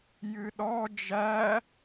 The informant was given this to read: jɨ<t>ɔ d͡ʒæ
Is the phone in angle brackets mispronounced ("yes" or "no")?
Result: yes